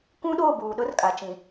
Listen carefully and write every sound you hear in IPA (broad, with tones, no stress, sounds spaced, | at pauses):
k ũ˦ ɗ oː˦˨ b uː˨ ɗ ʊ˦ r kʼ a˨ t͡ʃ ĩ˨